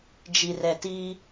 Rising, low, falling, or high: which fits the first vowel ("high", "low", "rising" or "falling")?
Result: low